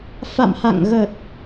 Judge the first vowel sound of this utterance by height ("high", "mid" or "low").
low